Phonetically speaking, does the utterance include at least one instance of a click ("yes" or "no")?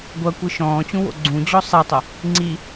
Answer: yes